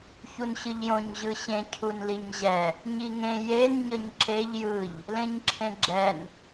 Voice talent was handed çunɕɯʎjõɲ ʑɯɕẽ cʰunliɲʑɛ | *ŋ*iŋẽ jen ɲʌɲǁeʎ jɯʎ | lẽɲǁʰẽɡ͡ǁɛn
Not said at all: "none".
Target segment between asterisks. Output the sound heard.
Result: ɲ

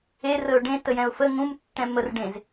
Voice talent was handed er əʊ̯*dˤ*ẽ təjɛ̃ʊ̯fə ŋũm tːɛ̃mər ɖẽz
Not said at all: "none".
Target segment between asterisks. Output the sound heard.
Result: ɖ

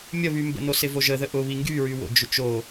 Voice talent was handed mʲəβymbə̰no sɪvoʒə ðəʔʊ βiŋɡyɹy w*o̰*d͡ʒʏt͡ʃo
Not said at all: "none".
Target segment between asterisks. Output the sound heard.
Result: o̰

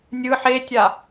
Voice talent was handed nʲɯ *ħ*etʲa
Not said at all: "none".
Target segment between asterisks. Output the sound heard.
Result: ħ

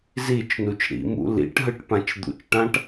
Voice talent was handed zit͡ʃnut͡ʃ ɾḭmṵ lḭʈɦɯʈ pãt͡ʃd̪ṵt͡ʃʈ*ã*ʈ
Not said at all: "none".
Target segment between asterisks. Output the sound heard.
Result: ã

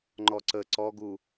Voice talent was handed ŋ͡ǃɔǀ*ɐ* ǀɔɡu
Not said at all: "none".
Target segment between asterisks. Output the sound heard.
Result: ə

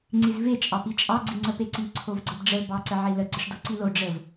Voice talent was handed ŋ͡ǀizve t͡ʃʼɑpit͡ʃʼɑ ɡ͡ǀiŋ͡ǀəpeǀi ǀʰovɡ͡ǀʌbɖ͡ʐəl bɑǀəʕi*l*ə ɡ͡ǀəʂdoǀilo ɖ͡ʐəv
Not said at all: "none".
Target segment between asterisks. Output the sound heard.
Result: l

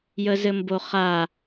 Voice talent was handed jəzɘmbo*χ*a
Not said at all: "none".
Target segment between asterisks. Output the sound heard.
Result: χ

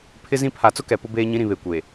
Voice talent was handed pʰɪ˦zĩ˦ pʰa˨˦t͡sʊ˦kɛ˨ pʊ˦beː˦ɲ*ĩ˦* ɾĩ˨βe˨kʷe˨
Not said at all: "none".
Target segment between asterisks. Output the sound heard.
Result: ĩ˦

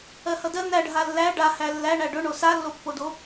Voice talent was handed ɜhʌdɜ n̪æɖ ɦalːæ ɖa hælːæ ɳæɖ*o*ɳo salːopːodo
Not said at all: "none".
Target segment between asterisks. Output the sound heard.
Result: ɵ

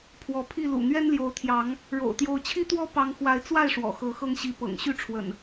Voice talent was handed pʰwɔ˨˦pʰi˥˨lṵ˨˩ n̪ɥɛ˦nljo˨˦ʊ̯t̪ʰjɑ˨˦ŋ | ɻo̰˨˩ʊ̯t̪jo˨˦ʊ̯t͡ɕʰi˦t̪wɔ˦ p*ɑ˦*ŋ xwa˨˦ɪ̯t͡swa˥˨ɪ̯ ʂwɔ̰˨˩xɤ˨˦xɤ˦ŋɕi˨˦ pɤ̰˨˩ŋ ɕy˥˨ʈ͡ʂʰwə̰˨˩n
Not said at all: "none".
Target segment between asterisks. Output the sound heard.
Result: ɑ˦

